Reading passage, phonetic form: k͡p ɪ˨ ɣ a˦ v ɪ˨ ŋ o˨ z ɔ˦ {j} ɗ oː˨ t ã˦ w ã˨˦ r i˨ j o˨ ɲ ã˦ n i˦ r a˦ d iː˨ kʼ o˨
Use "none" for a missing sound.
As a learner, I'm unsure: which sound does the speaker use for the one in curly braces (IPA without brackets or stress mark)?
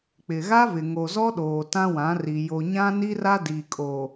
none